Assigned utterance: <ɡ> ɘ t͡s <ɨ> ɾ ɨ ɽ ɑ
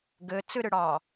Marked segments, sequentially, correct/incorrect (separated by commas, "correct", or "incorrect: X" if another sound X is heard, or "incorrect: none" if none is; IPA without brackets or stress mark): correct, correct